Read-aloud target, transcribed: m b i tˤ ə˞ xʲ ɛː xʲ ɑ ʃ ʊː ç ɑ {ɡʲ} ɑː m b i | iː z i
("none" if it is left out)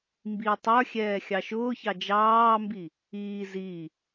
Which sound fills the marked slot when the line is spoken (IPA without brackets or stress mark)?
d͡ʒ